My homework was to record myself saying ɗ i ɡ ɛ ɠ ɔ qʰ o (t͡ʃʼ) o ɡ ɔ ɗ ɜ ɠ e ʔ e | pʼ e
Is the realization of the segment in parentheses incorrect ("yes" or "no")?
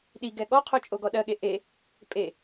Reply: no